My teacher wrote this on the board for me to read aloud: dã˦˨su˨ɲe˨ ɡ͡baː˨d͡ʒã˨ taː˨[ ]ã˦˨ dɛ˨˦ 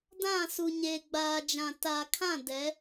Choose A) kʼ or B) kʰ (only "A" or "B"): B